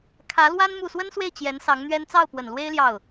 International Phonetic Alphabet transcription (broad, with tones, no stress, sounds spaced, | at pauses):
kʰ ä˧˥ l w a˥ n m u˥˩ s w ə˥ n s w e˥˩ ɪ̯ t͡ɕ j ɛ˧˥ n s ɑ˧˥ ŋ n̪ ɥ ɛ˥ n t͡s ɑ˥˩ ʊ̯ p w ə˨˩ n l w e˥ ɪ̯ l j ɑ˥˩ ʊ̯